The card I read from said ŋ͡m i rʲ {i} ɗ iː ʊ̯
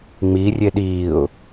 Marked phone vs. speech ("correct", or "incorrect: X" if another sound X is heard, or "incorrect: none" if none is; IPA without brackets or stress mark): incorrect: e